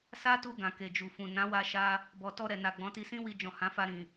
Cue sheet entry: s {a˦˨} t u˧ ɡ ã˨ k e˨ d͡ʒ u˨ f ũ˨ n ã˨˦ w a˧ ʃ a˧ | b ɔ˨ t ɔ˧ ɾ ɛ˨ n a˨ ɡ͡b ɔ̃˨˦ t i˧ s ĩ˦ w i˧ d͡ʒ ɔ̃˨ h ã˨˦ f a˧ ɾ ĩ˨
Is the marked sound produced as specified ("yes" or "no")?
no